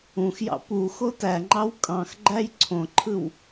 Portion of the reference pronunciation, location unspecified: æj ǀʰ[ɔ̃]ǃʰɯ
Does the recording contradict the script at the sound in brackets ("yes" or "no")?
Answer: yes